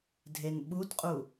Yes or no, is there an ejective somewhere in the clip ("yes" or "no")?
yes